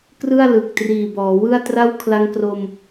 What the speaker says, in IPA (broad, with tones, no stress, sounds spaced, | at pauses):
k r ɯ˥˩ a̯ l ɯ˨˩ k̚ t r iː˨˩ b ɔː˩˦ w ɯ˥˩ a̯ t r a˥˩ w kʰ l a˦˥ ŋ k r o˧ m